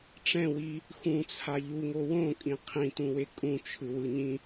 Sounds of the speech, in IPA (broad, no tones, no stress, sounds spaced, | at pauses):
ʈ͡ʂ ɛ̃ w i | x ũ t͡sʰ a ʎ u ŋ o w õ kʼ ĩ qʰ ĩ t ũ w e kʼ ũ t͡ʃʰ ɯ w ɯ ɲ ĩ